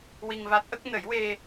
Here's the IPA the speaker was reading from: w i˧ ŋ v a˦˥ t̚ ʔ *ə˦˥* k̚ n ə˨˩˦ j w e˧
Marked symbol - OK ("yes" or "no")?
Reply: yes